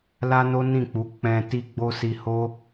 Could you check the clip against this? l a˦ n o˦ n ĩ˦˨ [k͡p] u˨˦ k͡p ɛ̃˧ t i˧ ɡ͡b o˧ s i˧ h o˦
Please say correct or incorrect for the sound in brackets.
correct